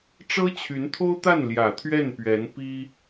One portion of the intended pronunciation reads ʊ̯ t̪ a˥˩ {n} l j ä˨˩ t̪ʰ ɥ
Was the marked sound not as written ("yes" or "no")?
no